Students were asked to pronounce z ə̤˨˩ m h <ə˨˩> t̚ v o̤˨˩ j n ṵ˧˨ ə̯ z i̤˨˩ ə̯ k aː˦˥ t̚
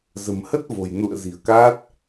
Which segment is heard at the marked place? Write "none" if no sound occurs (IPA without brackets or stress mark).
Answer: ə˦˥